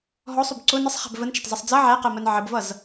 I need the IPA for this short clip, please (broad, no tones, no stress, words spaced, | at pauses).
ɦɔsˤʊb ǀʊ nəsˤχæ̤b vənt͡ʃɒtˤzʌsˤ d͡zʌ ʕæqɜmɜn ʕəbvʌz